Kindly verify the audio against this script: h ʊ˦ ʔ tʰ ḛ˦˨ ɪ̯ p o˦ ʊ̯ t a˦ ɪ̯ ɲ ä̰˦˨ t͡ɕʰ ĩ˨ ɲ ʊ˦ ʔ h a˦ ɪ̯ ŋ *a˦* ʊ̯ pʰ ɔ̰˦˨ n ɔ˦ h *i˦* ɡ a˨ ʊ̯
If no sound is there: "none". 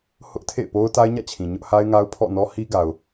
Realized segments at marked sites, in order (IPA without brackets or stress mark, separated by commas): a˦, i˦